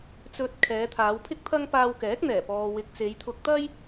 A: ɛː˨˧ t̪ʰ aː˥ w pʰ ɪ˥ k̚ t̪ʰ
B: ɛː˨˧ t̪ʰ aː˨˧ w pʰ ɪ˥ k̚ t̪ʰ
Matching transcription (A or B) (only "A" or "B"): B